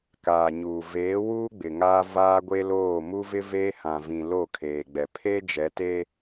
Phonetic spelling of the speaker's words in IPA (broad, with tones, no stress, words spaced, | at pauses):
kaː˨ɲuː˨ veː˨˦wuː˦ ɡ͡bɪ˨ ŋaː˦vaː˦ɡʷe˦loː˦˨ mu˦vɪ˦veː˦hã˨ vĩ˨ lo˦˨kʰeː˨ɡ͡bɛ˨ pʰe˦ d͡ʒɛ˨˦teː˦